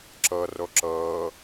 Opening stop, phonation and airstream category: click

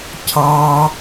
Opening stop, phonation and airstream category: aspirated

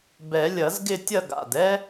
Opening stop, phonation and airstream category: plain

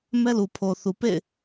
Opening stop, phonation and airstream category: aspirated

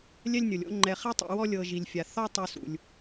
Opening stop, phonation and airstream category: click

